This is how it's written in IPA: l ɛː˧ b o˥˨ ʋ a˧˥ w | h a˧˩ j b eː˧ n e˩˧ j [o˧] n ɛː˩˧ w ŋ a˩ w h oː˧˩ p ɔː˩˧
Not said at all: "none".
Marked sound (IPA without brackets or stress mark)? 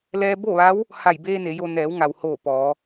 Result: o˧